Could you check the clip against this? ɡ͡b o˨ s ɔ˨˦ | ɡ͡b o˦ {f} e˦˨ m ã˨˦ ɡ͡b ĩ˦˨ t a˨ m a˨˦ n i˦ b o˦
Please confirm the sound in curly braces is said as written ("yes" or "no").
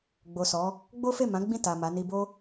yes